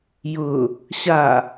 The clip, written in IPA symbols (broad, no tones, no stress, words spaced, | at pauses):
jʊ | ɕa